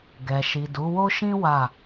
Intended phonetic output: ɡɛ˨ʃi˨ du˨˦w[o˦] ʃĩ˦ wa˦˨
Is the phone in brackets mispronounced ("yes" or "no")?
no